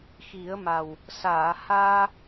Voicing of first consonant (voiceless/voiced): voiceless